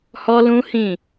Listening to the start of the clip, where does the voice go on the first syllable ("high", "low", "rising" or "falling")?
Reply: high